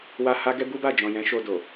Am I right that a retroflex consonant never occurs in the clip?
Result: yes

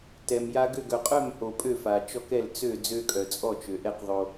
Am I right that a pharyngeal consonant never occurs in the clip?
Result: yes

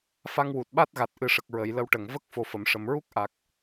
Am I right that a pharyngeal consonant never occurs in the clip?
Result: yes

